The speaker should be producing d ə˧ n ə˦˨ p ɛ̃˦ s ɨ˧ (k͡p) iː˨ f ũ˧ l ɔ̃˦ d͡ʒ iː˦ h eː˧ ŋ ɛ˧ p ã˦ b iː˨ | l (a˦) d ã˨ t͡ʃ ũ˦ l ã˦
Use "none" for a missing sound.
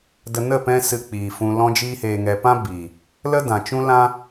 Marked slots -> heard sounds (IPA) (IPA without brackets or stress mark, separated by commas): k͡p, ə˦